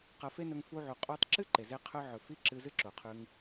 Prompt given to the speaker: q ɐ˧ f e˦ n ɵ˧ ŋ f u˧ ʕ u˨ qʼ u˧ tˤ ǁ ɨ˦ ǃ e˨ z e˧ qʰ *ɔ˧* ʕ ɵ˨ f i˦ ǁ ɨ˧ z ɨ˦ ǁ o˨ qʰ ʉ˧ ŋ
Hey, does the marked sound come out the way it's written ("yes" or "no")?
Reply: no